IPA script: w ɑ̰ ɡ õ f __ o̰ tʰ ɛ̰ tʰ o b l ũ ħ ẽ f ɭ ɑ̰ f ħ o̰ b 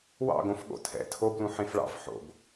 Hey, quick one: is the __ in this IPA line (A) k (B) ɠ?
B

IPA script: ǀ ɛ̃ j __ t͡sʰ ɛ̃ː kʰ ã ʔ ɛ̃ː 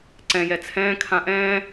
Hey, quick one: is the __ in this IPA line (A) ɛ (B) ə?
A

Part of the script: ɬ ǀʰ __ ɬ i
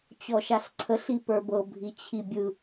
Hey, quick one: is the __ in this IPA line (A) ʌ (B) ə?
B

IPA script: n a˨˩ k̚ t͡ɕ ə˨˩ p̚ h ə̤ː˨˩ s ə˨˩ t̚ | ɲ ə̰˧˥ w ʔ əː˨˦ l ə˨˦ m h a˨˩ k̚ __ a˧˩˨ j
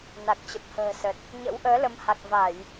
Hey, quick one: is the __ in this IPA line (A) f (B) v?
B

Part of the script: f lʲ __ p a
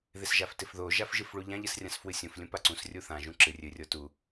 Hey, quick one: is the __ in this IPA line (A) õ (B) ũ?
B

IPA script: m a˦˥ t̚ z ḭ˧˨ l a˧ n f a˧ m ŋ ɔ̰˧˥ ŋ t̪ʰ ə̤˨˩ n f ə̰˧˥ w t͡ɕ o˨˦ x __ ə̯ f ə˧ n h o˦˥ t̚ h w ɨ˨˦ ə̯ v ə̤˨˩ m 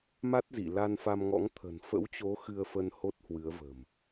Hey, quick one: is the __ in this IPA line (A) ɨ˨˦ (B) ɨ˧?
B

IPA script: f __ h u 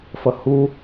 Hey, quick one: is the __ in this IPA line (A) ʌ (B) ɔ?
A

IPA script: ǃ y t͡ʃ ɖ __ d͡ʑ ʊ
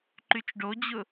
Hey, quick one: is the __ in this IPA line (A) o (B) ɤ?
A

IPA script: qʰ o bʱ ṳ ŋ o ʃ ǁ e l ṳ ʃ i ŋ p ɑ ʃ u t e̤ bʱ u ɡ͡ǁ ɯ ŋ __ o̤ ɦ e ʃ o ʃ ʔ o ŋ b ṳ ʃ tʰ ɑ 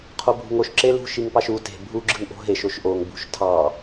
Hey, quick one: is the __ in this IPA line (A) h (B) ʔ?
B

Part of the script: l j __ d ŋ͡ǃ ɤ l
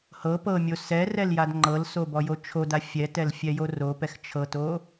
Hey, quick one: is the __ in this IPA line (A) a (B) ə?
A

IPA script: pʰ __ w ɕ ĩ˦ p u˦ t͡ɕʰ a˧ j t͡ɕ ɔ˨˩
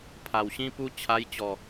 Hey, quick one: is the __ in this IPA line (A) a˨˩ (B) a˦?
A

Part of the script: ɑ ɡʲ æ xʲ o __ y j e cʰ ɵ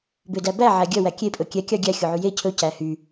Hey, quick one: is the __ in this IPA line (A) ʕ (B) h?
A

